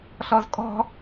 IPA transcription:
ɬ ɔ z kʼ ɔ̤

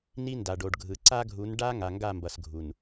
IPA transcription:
n i˦ n d a˨ ɖ o˨ ɖ ɡʱ ɯ˨ ǀ a˦ ɡʱ u˨˦ n ɖ a˦ ŋ a˨ ŋ ɡ a˦˨ m b ʌ˨ s ɡʱ u˨ n

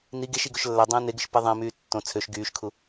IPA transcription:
n i ɡ e ʃ i ɡ o ʃ lː æ dˤ ẽː n e ɡ ɯ ʃ p e ðˤ ẽ m yː tː õ t͡sʰ ø ʃ ɡ yː ʃ kʰ u

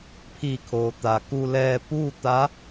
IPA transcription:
pʰ iː˧˩ kʰ oː˩ t̪ aː˩ k u˧ l ɛː˧ p uː˥˨ t̪ a˧˥

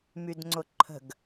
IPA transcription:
m y d ŋ͡ǀ ʊ ǃʰ ə̤ ɡ

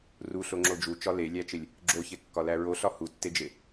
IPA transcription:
r u ɬ o ŋ͡ǁ o d͡ʒ u t͡ʃ ɒ l e lʲ æ t͡ʃ e lʲ | ɡ͡ǁ o ç e kː ɒ l æ ɹ o ɬ ɒ h u tː e d͡ʒ e

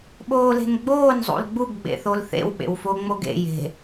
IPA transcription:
ɓ oː l e̤ n ɡ͡b oː n zˤ ṵ l ɡ͡b u ɡ ɡ͡b ḛ θ o l θ ḛ w ɓ ḛ w f o ŋ͡m o ɡ ḛ j e̤

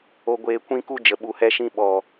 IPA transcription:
o˧ ɡʷ eː˧ kʷ ĩ˦ k u˦ d͡ʒ ə˨ ɓ u˨ h ɛ˧ ʃ ĩ˧ ɓ ɔ˨

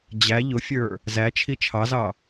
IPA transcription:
d͡ʑ æ ʎ ʊ fʲ ə˞ | z æ t͡ʃʰ i t͡ʃʰ ɑ z ɑ

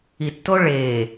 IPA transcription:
i tː o ɭ eː

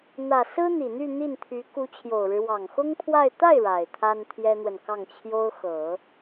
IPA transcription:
n̪ ä˨˩ s ɹ̩˥ n̪ i˨˩ n̪ y˥˧ n̪ i˥˩ n t̪ʰ y˧˥ k u˧˥ t͡ɕʰ j o˨˩ ʊ̯ ɻ ɻ̩˦ w ɑ˨˩ ŋ x ʊ˥ ŋ pʰ w a˥˧ ɪ̯ t̪ a˥˩ ɪ̯ ɻ a˨˩ ɪ̯ t̪ʰ a˥ n t̪ʰ j ɛ˥ n̪ w ə˨ n k ɑ˥˩ ŋ t͡ɕʰ j o˥ ʊ̯ x ɤ˨˩˦

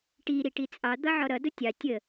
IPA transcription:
ʈ i ɾ i ʈ i t͡sʼ ɑ d̪ ʌ ʕ ɔ ɾ ʌ d ʊ tʲ ɑ tʲ ə

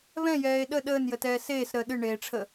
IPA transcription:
β ɛ̃ j ɛː e̯ ɗ ə ɗ əː n j ə t ɛː s eː s ɾ əː ɗ ɨ ɳ eː ʈ͡ʂʰ ə

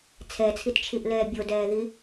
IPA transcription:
t͡sʰ ɛ t͡sʰ i t t͡ʃʰ i ʔ l ɛː bʲ o d ɛː ð i

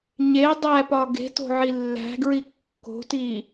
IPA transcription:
ɲ e dˤ æ p ɒ ɡ e̤ t o̤ ʕ i lː æ̤ ɡ ɹ i kː o̤ t i

